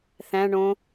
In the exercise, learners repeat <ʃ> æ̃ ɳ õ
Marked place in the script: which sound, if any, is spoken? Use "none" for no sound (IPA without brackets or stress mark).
θ